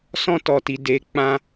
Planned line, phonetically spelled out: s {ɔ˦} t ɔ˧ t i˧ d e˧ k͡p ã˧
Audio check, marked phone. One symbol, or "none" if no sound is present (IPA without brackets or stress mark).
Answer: ɔ̃˦